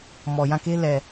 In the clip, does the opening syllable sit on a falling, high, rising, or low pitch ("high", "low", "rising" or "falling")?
low